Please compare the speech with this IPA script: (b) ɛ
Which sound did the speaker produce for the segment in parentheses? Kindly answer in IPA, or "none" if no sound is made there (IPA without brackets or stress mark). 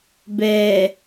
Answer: b